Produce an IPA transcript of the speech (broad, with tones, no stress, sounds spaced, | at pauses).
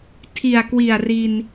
tʰ i˨˩ a̯ k w i˨˩ a̯ r i˧ n